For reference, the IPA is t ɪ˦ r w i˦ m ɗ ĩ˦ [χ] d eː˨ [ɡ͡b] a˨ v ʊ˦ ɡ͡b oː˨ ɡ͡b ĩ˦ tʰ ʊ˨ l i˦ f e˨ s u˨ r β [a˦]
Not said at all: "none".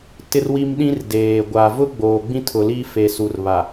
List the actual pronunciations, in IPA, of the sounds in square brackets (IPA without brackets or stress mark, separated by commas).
r, ɡʷ, a˨